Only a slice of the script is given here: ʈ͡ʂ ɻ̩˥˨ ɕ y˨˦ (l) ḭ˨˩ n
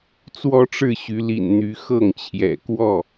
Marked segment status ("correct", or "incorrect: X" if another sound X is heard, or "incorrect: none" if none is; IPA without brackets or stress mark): correct